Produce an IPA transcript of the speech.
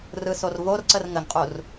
rɯsorvorǀər ŋəŋqʼur

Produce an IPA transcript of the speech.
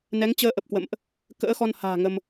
nɛ˨˦ŋt͡ɕəː˧ʔə˨˩p̚kwə̰˧˨mʔ | kə̰ː˧˥xɔ˧n ha̤ː˨˩ ŋə˧m

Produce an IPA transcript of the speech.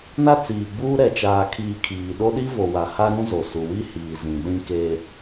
na˦t͡siː˨ɡ͡buː˦ ɾɛ˨t͡ʃaː˨kʰiː˨ kʰiː˨ ɗo˦ɗi˦vo˨wa˨ ha˦ɾũ˦ zo˨su˨wi˦hiː˨ zĩ˨ɗĩ˦ke˦

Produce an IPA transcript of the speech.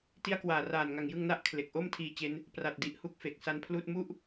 ti˦˥a̯kwaː˨˩raː˨˩nŋa˨˩ŋ jɯ˧ŋna˦˥ʔ kʰle˨˩k̚ʔo˥˩m tʰiː˧ t͡ɕe˦˥n | pra˨˩t̚di˨˩ʔ hu˥˩k̚fe˨˩k̚sa˦˥npʰluː˥˩t̚ mu˥˩ʔ

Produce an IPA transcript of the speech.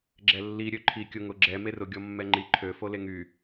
ɡ͡ǁɛlːi ɾʲøǃʰi kʲʊ ŋʊ ɡ͡ǁɛ merʊ ɡʲɔmːɛŋ͡ǃi ǃʰø foleŋy

